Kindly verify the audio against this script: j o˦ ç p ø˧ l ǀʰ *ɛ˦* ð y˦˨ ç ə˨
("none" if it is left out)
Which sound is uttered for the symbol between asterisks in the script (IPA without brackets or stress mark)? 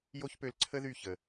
ə˦